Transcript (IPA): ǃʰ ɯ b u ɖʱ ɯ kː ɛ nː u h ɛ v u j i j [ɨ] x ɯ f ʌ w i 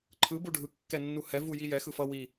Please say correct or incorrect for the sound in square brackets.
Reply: incorrect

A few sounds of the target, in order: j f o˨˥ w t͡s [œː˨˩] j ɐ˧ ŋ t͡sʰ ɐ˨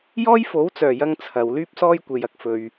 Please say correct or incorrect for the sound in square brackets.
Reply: correct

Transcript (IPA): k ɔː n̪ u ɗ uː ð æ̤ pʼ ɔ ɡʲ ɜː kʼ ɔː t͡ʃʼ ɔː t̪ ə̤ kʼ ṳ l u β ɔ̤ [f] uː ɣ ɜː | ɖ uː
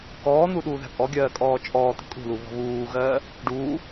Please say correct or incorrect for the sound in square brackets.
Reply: incorrect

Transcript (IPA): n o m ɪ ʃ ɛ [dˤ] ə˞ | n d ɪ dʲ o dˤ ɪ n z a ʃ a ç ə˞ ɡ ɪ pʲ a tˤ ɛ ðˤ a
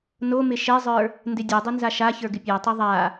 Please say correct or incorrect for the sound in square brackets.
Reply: incorrect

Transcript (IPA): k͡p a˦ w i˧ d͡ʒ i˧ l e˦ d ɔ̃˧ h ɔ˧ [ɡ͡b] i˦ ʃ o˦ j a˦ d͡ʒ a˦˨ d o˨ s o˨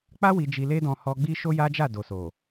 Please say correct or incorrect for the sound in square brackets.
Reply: correct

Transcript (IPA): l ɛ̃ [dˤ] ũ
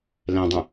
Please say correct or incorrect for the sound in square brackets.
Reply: correct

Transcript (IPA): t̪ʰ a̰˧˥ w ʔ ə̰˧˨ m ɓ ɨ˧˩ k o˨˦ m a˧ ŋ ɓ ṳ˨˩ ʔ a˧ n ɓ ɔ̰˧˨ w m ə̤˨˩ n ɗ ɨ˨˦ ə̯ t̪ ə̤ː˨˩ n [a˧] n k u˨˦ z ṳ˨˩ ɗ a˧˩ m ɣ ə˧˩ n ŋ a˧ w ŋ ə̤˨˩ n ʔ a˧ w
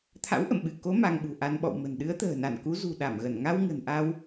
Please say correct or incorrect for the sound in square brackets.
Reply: incorrect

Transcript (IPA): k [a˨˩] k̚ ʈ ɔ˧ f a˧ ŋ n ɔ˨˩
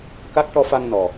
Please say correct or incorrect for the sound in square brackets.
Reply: incorrect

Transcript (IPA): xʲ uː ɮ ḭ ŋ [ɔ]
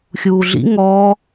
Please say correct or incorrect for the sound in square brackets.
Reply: correct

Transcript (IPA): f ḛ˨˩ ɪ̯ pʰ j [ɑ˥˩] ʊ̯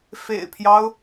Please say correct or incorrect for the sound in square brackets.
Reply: incorrect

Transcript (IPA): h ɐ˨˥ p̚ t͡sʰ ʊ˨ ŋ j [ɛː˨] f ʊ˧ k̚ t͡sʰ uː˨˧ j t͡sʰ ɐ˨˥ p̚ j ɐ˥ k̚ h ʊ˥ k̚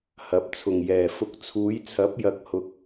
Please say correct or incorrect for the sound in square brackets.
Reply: correct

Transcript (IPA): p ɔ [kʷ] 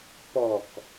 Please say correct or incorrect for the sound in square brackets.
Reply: incorrect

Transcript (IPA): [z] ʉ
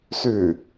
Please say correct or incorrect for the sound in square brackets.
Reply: incorrect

